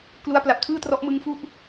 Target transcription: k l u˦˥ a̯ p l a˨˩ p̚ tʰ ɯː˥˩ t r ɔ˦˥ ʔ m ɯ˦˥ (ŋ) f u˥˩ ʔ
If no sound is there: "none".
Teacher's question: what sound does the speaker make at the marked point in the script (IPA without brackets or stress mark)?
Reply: ŋ